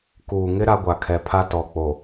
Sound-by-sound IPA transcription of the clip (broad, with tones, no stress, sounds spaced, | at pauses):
k uː˨ ŋ ɪ˦ ɾ a˦ ɡʷ a˨ kʰ ɛ˨ pʰ a˦ t ɔ˨ k͡p o˨